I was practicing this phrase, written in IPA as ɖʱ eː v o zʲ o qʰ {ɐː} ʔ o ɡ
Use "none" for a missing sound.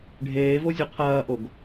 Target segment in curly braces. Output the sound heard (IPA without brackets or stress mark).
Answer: ɐː